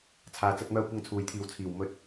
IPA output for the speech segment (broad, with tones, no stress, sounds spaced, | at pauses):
t͡sʰ aː˨ t͡s ɐ˧ t̚ m œː˧ kʷ ɐ˧ ŋ t͡sʰ uː˨ j t̪ʰ iː˨ w t͡sʰ iː˨˩ w m ɵ˨˥ t̚